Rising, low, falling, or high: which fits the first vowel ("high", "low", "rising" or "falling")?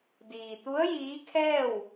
low